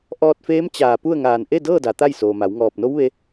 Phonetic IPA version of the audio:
ʔ ɔː˧ t̚ f eː˧˥ m t͡ɕ aː˧˩ p u˥˨ ə̯ ŋ aː˧˩ n ʔ e˥˨ d ɤː˥˨ d a˩ t̪ a˥˨ j s oː˩ m a˩˧ w ŋ ɔː˧˩ p̚ n o˧˥ w ʋ e˧

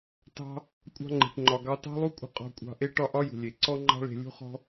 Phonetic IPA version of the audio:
t ɑ̤˧ | kʷʼ ɑ̤˧ ŋ͡ǃ e̤˩ ʈ ŋ͡ǃ ɒ˩ ɡ ɑ˧ t ɑ̤˥ lˠ u˥ kʷʼ ə̤˧ qʼ ɔ̤˧ kʷʼ ɑ̤˧ ʔ e˥ ʈ ɒ˥ ʔ ɒ˥ j ṳ˩ lʲ e˩ ǀ ɔ˥ ŋ͡ǃ ɑ̤˥ ɭ e̤˧ lʲ ṳ˥ χ ɔ̤˥

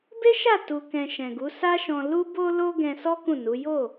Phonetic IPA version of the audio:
b e˦ ʃ a˦˨ t u˨ k ɛ̃˨ ʃ ɛ̃˨ ɡ u˨˦ s a˦ ʃ ɔ̃˧ l u˦ b o˦ l o˦ ɡ ɛ̃˧ s ɔ˦ k ũ˦˨ n u˨˦ j o˦˨

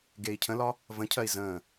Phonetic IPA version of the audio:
ɡ e i̯ cʰ ə̃ l ɒ | v ə̃ cʰ ɜ i̯ z ə̃ː

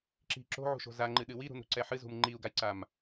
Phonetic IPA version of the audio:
ǁ i̤ ǁ o̤ ʕ ṳ ʃ o̤ z a ŋ͡ǃ ɨ ɗ ɨ w i ɾ ṳ n ɾ ṳ ǀ ɛ ħ ɨ z ṳ m ŋ͡ǃ i u̯ ɡ a j ǀ a m

